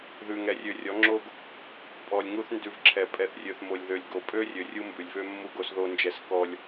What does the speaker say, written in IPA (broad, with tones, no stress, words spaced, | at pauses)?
ðʉ˨ŋɛ˨rʲø˨rʲɔ˨˦ ŋ͡ǁo˦ɡ | pʼɔ˨lʲ ŋu˦θ ndʉ˨vǁʰɛ˨ pʼɛ˨θrʲø˨θmo˨lʲðø˨lʲ ɡo˨ pʼø˦rʲø˨ rʲu˦mbʉ˨lʲvø˦mːu˦ ɡo˦sðo˦nd͡ʒɛ˦s kɔ˦lʲ